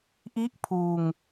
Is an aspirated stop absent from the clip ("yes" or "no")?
no